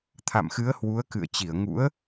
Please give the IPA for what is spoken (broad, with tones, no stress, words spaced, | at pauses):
t̪ʰa̰˧˨mxɨ˨˦ə̯hwu˨˦ə̯ kɨ̰˧˨ə̯t͡ɕi˧˩ə̯ŋṵ˧˥ə̯